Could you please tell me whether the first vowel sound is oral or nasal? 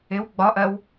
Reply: oral